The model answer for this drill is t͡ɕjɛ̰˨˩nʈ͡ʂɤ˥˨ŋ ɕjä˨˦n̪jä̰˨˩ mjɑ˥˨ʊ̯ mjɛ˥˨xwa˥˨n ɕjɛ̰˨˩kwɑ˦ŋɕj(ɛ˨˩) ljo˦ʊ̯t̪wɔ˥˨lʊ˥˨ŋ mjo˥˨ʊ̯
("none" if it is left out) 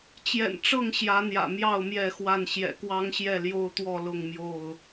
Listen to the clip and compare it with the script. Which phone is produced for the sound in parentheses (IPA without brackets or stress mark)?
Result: ɛ˥˨